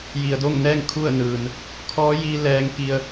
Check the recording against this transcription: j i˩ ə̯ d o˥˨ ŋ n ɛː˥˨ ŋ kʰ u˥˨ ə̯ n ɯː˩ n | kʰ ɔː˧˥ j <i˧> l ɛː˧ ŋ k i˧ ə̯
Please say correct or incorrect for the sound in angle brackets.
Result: correct